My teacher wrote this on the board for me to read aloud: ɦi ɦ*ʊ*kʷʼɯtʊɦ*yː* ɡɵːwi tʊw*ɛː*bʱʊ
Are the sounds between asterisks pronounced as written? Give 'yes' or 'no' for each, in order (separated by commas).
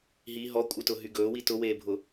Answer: no, no, no